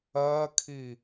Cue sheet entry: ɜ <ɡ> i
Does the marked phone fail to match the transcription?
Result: yes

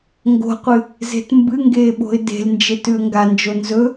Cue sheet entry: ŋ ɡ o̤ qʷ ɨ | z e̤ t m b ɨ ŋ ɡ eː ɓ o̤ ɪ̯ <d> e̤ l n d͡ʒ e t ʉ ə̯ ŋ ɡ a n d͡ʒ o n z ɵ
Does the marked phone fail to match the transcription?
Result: no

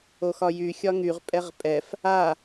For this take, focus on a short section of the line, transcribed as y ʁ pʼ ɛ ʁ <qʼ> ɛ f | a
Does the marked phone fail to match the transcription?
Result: yes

